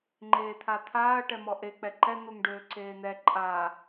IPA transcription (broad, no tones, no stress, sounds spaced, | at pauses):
ŋ͡ǃ eː t̪ʰ a t̪ʰ aː ɐ̯ ʈ ɛ m ɔ ʔ e k͡p ɛ ǃ ɛ n̪ u ŋ ɖ øː ǀ eː n̪ ɛ ǃʼ aː